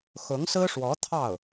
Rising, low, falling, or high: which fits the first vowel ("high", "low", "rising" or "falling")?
rising